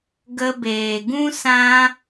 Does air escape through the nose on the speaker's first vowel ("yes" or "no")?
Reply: no